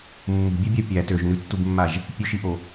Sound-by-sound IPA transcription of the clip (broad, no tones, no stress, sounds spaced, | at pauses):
mː ṳ bʲ ø bʲ a pʲ æ t ø ʒ n ʉ tː u b mː a ʒ | pʲ ʉ ʃ i ʔ o